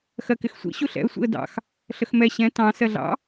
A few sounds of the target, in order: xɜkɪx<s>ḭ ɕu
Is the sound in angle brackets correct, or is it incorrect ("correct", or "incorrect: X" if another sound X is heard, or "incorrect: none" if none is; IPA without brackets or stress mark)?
incorrect: sʷ